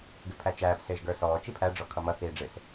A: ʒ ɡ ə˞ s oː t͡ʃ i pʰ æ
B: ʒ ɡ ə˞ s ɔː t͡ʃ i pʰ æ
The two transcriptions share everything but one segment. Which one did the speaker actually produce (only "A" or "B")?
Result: B